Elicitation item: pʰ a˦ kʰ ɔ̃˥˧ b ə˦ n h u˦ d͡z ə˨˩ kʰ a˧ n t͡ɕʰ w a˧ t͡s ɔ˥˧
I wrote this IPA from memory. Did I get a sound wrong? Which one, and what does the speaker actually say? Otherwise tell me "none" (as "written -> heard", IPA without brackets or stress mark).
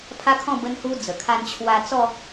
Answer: none